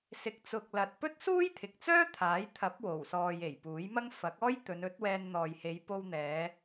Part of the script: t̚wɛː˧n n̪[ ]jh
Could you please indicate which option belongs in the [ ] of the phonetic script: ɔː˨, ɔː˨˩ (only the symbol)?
ɔː˨